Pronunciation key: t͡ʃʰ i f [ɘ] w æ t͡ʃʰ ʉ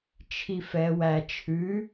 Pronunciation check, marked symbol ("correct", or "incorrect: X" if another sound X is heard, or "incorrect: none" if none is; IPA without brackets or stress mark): incorrect: ɛ